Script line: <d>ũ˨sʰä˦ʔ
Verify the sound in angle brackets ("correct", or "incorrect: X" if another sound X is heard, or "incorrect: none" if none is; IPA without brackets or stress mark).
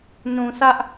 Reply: incorrect: n